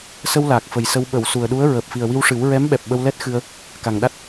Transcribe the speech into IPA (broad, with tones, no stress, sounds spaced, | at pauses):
s ə˧ w l aː˨˩ k̚ f ə˨˩ j s ə˧ w ɓ ə˨˩˨ w s u˨˩ ə̯ ɗ u˧˥ ə̯ ɹ əː˨˩ p̚ f i˨˩ ə̯ w i˧ w ʂ ɨ˨˩˦ w ɹ ɛ˧˥ m ɓ ɛ˨˩ p̚ ɓ ə˧ w l ɛ˦˥ t̚ x ɨ˧ ə̯ | k a˨˩ ŋ ɗ a˦˥ t̚